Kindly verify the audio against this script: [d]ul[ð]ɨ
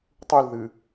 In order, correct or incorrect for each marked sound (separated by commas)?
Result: incorrect, correct